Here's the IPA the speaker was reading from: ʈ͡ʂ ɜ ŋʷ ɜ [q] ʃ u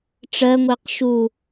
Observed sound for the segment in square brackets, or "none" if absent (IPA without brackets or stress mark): q